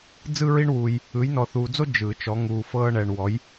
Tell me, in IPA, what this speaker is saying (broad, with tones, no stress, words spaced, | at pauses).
d͡zɯ˥ɹi˥ɳwuː˧j | ɯ˨˥jnɔ˧θuː˧d͡zo˥ d͡ʒɯ˨˩˦ t͡ʃɔ˨˥ ŋuː˧ fɤː˥ɳɛ˧ɳ wɔ˨˥j